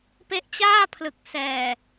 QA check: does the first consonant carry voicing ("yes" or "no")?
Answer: no